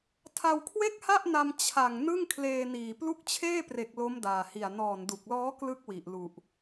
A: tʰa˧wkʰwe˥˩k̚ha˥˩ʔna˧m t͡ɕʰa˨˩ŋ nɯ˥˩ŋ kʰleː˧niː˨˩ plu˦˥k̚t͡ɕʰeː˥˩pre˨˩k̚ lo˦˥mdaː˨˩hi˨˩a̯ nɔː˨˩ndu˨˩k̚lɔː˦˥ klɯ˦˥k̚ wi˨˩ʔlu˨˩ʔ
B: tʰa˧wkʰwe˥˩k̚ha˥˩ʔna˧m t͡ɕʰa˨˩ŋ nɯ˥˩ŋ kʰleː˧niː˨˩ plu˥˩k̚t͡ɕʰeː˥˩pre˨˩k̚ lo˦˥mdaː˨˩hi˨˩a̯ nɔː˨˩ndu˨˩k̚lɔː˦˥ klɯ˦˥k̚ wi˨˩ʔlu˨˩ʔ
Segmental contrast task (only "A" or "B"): A